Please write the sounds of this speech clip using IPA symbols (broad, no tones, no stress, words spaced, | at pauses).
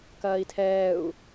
kɐːi̯tʰɛːu̯